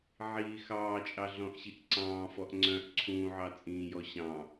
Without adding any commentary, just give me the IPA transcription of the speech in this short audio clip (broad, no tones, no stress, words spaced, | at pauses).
ʕiːxɑːt͡ʃʼɑ ɮɔ̃ʔɕiʔǀɑ̃ːfɔʔ ŋ͡ǀœ̃ʔ ǀʰũːʕɑ t͡sʼĩːjɔ ɕɑ̃